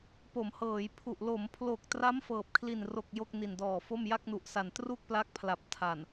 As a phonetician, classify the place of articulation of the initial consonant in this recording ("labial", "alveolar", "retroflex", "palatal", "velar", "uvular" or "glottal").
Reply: labial